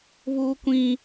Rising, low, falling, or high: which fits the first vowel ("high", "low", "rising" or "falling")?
high